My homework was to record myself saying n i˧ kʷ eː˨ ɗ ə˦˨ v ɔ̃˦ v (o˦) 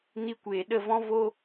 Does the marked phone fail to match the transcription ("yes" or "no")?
no